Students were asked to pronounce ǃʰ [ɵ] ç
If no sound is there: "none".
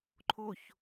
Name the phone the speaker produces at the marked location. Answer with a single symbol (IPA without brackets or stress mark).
o